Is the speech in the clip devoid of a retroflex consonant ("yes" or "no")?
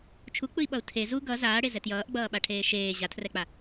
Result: no